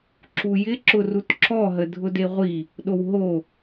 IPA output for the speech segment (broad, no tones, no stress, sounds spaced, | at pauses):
ǁ u j ɪ ǁ ʊ r u t ǁ ɔ ɦ ə dʱ ʊ d e ʁʷ i | ɗ o w ɦ o